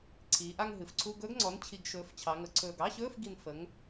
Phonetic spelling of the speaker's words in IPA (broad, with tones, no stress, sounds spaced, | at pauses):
ǀʰ iː˩˧ ʔ a˥˧ ŋ ɦ ɨ˩˧ f ǀʰ u˧˥˧ ɡ ɵː˧˥ ɡ ŋ͡ǀ ɔ˩˥ n t͡ɕʰ i˨˩ ɡ ʃ ɵː˩˥ f t͡ɕʰ ɑ˩˧ ŋ ə˩˧ ǀʰ ɵː˨˩ ɡ ɑ˧˥˧ ɕ ɵː˧˥˧ f ɡ i˨˩ n f ə˩˥ ŋ